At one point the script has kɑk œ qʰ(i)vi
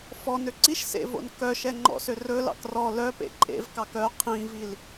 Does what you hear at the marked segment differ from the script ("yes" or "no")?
yes